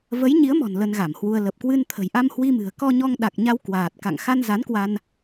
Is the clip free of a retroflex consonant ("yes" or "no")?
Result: yes